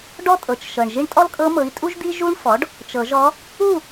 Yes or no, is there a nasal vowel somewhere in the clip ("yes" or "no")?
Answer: no